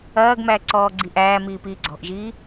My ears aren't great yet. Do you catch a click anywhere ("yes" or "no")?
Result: yes